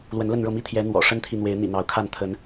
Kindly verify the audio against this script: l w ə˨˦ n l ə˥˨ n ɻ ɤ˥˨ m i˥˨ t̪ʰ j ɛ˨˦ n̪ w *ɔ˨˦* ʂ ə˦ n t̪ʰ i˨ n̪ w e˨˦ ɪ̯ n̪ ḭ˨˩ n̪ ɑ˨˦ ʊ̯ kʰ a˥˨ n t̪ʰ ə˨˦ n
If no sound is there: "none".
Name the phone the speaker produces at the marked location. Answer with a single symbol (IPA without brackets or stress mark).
ɔ̰˨˩